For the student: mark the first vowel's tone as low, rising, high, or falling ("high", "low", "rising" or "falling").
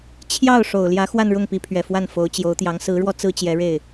falling